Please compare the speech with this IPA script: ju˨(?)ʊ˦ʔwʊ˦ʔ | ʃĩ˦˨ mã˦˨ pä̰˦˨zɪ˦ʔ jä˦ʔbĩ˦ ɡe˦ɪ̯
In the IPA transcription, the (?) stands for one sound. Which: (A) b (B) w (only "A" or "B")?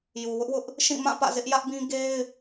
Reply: B